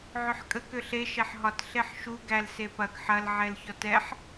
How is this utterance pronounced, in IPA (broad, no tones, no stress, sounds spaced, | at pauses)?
ʕ ʏ ħ kʼ ə k ʏ ɬ e ʃ ɛ ħ ɦ ɒ t ɬ e ħ ʃ u ɡ æ l s e p ɐ ɡ ħ ɐ l ʕ ɛ l ç ɔ t ɛ ħ